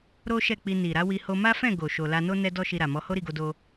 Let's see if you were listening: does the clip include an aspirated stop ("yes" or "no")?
no